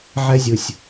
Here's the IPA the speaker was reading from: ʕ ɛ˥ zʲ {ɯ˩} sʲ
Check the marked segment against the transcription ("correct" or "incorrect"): correct